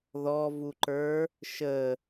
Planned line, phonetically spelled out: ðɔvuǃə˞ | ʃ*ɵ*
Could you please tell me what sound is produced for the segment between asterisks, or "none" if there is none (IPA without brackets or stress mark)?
ə